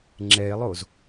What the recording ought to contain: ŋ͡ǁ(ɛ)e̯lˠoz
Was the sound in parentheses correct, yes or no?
yes